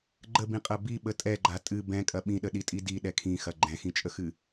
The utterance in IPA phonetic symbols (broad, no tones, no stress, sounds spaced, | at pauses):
ɡ͡ǃ ə b ĩ qʼ ɐ b i ɓ ə tʼ ɛ ɡ͡ǃ a tʼ ɨ b ɛ̃ kʼ ɐ ɓ ĩ ɗ ə ɗ i tʼ i d i ɗ ɛ kʰ ĩ x ɐ ɡ͡ǃ ɛ̃ x ĩ t͡ʃʼ ə x ɨ